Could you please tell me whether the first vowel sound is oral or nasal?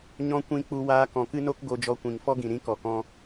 nasal